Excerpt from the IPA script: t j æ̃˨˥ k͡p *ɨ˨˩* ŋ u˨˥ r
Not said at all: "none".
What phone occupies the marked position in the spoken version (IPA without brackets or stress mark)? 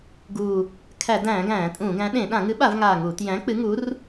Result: ɨ˨˥